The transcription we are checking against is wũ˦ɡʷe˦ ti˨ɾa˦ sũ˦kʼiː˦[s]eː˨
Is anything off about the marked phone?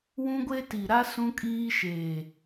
yes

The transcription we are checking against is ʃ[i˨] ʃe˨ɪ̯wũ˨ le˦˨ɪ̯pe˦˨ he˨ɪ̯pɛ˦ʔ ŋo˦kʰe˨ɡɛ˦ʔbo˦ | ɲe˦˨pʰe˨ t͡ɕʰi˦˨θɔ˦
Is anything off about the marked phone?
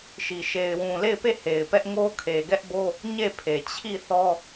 no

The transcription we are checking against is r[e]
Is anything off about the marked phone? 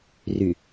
yes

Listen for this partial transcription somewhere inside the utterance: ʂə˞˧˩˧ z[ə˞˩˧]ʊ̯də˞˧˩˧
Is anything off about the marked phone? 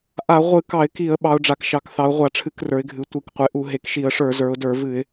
no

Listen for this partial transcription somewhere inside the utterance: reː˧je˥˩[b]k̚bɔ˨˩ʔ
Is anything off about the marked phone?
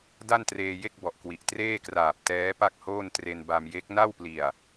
yes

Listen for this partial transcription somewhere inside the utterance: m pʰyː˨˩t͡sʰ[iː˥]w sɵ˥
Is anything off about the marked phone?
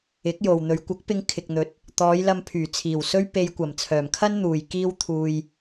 yes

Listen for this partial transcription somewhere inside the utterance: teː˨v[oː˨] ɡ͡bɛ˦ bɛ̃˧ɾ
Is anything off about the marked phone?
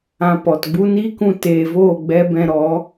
yes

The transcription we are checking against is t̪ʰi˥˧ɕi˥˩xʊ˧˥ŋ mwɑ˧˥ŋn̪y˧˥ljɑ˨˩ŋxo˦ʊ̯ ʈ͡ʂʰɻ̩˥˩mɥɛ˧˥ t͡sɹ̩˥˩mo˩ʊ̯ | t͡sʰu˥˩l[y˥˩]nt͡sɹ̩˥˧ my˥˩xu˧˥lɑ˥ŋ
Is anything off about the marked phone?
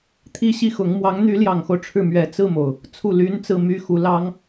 yes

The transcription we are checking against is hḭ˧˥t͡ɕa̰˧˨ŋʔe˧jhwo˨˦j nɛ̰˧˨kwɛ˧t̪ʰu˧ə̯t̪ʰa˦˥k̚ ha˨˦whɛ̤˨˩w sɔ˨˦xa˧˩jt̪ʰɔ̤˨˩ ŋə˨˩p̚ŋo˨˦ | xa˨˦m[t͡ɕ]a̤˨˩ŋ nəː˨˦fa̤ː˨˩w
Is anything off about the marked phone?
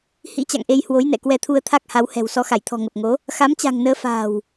no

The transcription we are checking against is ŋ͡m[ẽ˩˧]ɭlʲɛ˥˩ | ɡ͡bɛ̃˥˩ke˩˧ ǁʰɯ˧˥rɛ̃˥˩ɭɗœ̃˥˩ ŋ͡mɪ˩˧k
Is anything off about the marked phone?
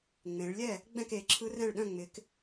no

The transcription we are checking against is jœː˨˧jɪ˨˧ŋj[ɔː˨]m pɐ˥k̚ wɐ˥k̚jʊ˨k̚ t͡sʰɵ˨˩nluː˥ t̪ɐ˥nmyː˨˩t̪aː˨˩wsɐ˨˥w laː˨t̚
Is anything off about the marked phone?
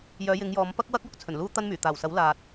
yes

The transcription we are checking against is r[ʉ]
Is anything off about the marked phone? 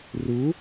yes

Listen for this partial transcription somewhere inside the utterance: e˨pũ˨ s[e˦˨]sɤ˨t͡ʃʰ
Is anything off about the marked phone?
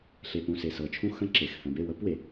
yes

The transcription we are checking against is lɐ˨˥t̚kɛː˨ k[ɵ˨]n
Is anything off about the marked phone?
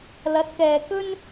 yes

